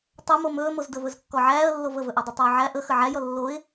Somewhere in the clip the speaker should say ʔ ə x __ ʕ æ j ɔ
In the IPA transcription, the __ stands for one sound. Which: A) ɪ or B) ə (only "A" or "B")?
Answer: B